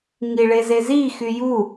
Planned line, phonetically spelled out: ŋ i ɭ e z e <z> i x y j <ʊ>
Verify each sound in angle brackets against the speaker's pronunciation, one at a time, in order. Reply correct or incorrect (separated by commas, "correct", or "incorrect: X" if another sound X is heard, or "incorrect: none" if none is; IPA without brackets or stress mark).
correct, incorrect: u